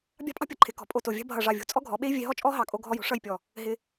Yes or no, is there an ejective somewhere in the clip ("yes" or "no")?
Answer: yes